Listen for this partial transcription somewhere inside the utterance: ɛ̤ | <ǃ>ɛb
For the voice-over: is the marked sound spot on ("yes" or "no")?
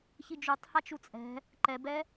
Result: yes